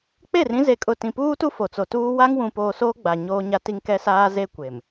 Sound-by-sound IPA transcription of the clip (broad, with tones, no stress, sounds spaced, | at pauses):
k͡p e˦˨ r ĩ˦ z e˨ kʼ ʊ˨ t ĩ˨ p uː˦ t u˦ f o˨ t͡s o˨ t uː˦ w a˦ ŋ w ũ˨ p oː˨ s oː˦ ɡ͡b a˨ ɲ oː˦ ɲ a˦ t i˦ ŋ k ɛ˦ s aː˦ z e˦ kʷ e˨ m